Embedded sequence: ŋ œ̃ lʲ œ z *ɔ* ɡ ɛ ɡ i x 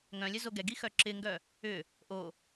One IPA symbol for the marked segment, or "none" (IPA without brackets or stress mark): o